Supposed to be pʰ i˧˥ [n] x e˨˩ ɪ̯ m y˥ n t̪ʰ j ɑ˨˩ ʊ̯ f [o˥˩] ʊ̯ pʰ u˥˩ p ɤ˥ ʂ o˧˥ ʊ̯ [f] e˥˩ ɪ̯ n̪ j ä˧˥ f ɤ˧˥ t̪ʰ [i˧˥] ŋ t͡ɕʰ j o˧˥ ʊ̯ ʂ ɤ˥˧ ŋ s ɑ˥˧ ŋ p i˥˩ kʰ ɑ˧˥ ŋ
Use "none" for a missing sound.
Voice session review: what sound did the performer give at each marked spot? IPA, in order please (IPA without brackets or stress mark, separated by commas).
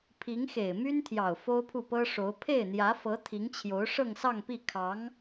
ŋ, o˥, pʰ, i˧˥